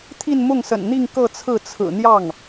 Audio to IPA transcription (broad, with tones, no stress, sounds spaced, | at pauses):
t̪ʰ i˥˧ n m ʊ˥˩ ŋ s ə̰˨˩ n n̪ i˥˧ ŋ k ɤ˥˧ t͡sʰ ɹ̩˥˩ t͡sʰ ɹ̩˨˩ n̪ j ɑ˥˩ ŋ